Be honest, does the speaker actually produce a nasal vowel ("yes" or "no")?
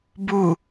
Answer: no